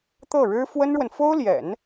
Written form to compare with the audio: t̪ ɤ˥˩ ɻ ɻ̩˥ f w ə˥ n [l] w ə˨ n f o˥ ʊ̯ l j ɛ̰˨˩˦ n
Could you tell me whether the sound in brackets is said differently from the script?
yes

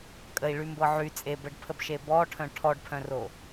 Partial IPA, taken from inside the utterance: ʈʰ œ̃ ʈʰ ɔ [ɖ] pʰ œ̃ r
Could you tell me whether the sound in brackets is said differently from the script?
no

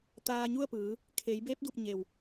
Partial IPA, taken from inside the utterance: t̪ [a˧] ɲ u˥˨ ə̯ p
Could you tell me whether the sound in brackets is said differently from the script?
yes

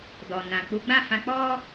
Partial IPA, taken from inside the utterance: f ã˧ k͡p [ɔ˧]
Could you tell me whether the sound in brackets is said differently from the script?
yes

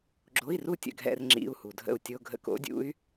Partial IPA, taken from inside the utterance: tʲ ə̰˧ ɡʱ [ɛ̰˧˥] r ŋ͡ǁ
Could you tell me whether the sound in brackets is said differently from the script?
yes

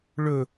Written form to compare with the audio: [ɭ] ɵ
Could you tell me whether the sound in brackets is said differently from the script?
no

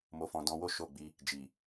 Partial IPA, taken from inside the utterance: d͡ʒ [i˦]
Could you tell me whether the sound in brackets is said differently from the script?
yes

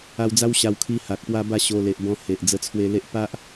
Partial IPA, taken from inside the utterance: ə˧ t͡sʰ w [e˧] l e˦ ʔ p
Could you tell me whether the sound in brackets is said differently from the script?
no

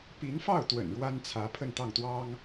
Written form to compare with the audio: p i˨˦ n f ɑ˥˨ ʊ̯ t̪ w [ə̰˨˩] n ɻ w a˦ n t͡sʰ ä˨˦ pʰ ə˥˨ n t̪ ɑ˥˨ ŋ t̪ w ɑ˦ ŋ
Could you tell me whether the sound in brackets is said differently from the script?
no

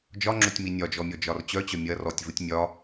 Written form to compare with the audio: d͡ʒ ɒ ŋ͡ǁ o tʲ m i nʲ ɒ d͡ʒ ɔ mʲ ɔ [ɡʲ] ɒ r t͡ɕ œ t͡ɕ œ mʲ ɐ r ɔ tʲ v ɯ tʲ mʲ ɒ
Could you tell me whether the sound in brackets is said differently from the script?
yes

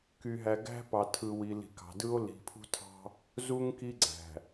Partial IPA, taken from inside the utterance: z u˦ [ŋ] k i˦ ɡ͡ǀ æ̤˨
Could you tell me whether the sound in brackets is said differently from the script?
no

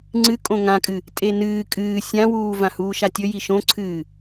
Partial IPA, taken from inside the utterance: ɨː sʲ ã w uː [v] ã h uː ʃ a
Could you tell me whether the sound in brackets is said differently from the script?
no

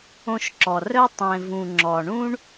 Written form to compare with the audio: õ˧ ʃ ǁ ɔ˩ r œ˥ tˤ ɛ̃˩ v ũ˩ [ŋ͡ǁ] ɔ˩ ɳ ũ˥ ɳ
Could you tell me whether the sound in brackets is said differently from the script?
no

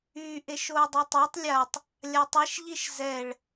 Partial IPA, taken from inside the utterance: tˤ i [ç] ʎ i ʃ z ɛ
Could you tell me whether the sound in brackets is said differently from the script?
yes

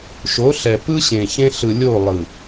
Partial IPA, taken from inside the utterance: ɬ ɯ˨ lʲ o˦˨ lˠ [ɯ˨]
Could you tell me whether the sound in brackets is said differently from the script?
no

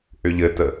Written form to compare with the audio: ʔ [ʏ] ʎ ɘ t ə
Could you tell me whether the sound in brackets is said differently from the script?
no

